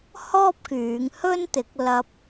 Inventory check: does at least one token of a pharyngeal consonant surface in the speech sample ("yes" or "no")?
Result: no